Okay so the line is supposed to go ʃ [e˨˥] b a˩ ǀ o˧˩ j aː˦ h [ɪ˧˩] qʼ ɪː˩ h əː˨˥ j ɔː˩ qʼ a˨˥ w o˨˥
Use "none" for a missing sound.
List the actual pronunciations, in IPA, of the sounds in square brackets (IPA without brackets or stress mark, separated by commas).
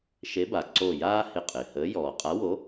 e˨˥, ɪ˧˩